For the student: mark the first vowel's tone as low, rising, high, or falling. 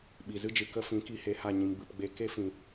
low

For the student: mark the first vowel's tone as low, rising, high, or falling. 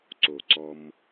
low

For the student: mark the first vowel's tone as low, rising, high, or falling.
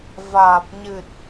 low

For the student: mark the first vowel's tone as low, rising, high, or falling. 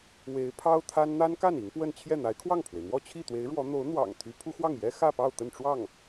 rising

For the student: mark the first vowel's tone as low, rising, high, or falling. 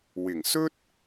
low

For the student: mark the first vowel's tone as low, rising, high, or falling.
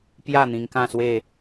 falling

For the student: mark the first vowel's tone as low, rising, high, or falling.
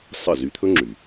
falling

